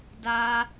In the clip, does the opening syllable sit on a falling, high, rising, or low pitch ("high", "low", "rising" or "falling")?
high